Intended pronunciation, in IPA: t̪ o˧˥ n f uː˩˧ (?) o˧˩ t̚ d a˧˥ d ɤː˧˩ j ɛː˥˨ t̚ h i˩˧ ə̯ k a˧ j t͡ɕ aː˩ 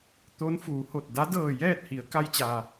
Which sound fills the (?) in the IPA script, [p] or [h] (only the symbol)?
h